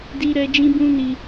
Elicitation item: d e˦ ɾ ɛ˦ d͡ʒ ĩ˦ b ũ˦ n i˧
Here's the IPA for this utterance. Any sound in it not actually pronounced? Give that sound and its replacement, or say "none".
e˦ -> i˦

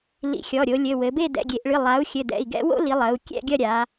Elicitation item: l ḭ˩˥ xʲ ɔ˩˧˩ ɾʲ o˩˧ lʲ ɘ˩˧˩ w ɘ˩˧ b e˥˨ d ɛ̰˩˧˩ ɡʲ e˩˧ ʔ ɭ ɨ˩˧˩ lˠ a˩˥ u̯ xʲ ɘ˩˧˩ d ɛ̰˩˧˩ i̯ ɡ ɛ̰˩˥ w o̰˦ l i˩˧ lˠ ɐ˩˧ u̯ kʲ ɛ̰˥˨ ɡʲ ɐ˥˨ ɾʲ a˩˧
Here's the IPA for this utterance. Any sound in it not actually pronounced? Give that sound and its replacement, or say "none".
none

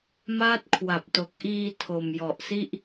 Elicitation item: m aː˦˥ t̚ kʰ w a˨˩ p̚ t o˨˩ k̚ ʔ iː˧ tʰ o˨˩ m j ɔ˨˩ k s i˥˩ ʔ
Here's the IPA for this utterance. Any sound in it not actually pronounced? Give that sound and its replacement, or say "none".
k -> ʔ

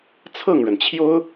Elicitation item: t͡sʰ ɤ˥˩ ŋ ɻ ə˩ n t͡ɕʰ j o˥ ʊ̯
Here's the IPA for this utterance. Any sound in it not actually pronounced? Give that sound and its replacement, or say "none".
none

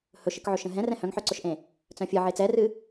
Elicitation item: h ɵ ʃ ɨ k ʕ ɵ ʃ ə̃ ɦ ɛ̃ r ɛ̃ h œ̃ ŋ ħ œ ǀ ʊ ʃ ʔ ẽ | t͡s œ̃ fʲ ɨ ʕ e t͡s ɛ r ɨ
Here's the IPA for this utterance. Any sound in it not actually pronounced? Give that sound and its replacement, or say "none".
none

